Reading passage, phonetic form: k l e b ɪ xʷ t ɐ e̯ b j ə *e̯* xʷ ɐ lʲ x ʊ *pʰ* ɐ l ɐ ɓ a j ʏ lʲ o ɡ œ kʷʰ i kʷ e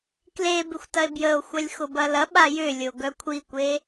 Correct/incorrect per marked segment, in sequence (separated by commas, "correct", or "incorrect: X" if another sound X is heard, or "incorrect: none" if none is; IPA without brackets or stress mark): incorrect: o̯, incorrect: b